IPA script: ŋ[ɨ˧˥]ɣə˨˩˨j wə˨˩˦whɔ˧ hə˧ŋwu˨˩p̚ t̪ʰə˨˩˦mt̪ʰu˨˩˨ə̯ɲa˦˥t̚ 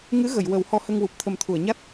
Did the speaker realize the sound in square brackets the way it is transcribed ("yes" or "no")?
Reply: yes